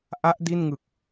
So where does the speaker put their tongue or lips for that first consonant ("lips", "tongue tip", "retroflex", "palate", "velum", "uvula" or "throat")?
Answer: throat